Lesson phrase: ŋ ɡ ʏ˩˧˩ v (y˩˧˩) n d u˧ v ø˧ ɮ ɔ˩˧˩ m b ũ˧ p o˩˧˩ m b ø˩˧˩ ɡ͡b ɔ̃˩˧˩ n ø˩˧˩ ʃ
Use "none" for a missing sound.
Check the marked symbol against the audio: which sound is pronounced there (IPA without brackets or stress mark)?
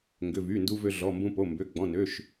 y˩˧˩